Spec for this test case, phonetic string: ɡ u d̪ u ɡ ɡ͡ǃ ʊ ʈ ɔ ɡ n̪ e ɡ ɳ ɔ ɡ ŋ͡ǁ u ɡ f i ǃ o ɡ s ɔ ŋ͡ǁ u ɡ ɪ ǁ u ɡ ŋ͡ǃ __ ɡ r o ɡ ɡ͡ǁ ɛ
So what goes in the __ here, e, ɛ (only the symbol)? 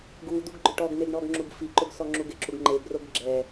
e